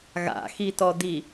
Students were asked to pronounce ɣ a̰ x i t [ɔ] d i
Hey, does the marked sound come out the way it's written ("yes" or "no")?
yes